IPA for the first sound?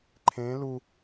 ǃʰ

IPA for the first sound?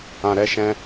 ã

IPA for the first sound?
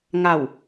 ŋ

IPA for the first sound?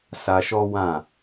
s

